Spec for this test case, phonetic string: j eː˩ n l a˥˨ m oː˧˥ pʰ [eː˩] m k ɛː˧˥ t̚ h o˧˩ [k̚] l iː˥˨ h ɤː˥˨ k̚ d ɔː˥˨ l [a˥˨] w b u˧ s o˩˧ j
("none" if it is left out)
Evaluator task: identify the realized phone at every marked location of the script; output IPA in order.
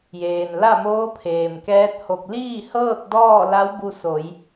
eː˩, k̚, a˧˥

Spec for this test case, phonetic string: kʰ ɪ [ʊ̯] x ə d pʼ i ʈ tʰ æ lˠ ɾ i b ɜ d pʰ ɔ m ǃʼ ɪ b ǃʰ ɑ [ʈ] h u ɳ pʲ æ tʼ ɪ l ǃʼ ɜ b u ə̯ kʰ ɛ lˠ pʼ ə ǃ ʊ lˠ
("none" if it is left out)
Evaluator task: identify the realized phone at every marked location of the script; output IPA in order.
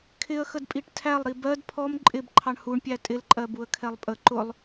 ə̯, ɳ

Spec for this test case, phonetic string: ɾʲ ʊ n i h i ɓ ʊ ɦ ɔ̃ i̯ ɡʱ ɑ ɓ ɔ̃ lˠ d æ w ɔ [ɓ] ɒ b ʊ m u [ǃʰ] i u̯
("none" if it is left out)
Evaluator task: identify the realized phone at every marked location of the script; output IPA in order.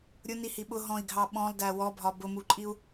bʱ, ǃʼ

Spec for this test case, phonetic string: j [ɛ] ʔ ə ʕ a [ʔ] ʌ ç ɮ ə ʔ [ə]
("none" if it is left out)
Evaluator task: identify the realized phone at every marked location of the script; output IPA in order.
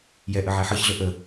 ɛ, ħ, ə

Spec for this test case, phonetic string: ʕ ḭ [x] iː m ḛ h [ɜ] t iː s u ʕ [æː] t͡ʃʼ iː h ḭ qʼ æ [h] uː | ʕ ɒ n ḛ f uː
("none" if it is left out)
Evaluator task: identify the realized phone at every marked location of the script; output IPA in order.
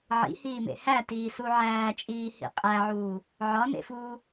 h, æ, æː, ʕ

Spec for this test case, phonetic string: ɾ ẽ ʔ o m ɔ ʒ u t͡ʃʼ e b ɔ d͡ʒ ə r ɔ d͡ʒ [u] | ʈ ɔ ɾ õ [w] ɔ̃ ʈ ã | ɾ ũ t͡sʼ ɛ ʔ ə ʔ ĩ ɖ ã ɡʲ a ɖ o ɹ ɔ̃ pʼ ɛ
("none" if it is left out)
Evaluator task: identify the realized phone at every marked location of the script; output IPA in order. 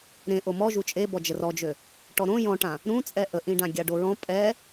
ø, j

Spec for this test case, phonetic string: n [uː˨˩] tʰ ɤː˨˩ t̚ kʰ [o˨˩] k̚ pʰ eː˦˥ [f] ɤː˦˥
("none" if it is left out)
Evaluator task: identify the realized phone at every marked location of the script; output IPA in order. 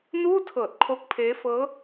uː˥˩, o˦˥, f

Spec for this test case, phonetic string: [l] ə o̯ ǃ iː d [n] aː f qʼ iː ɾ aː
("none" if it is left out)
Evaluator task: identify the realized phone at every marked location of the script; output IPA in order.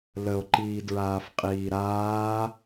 l, ɹ

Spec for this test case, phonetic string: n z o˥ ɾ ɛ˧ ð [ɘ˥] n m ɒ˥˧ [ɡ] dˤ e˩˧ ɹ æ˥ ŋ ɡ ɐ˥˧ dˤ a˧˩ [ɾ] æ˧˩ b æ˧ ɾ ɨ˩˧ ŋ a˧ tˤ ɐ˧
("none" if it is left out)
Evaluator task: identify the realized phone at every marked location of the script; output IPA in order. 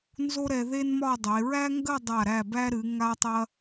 e˥, none, ɾ

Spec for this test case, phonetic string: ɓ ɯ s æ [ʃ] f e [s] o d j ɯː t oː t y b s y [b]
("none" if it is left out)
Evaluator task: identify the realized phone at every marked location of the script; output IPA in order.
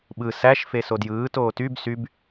ʃ, s, b

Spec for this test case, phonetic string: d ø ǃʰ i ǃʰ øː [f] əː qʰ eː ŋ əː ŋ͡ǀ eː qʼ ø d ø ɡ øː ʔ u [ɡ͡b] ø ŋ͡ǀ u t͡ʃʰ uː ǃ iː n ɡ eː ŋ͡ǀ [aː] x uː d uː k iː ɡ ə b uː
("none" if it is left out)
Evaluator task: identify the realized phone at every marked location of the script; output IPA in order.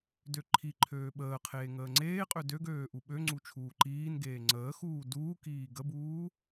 ɓ, ɓ, əː

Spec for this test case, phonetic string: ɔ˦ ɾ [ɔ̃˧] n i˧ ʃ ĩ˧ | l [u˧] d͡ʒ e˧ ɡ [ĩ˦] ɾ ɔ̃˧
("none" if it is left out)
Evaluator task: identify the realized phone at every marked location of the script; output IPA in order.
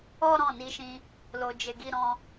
ɔ̃˦˨, o˧, i˦

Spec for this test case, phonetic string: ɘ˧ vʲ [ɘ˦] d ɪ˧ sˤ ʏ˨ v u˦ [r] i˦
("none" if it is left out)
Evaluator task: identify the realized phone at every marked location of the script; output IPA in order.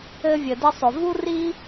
ɘ˨, r

